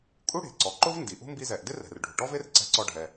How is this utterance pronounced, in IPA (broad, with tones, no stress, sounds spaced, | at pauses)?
kʼ u˥ ɽ e̤˩ ǀ ɔ˩ ǃ ʊ˥ v n d i˩ ʔ ṳ˥ m b i˧ z ɛ˩ ʔ d ɪ˥ r ɛ̤˩ r ɖʱ ṳ˩ ʈ ɔ˥ v e˥ r ǀ ɛ̤˧ ǀ ɔ˧ ɖʱ ɛ˩